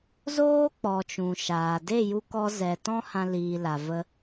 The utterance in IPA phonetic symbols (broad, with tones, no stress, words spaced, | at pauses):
zoː˦ k͡pɔ˨t͡ʃũ˨ʃaː˨ de˦˨ju˧kɔ˧ zɛ˨ tɔ̃˦hã˧liː˨la˨ və˧